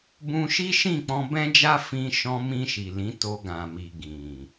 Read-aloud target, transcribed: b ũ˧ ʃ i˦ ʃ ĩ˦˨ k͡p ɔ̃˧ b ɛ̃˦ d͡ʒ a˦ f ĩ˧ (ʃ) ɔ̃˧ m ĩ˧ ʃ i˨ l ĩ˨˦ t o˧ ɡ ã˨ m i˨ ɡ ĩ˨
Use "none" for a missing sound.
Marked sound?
ʃ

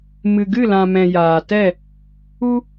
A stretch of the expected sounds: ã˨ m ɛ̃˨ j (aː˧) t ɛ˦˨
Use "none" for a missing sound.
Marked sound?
aː˨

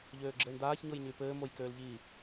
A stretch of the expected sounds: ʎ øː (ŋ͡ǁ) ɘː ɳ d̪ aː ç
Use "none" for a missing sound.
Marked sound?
ɡ͡ǁ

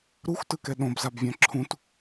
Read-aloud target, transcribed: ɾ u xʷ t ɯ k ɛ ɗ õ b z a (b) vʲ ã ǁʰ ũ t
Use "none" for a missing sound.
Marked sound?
b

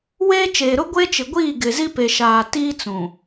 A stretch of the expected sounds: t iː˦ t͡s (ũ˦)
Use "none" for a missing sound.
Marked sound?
ũ˨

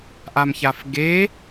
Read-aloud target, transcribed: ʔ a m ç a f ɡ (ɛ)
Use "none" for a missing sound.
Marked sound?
e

